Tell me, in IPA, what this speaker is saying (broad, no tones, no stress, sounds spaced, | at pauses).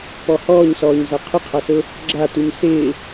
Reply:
p ɔ h ɔː ɲ s ɔː ɲ z a qʰ ʊ qʰ a s ʊ | ɡ͡ǁ a t u ɲ s ɪː